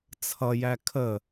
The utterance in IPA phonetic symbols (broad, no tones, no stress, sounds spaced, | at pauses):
t͡sʰ ʌ j æ kʰ ə